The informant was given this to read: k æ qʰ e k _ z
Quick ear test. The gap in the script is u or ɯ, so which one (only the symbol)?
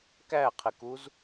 u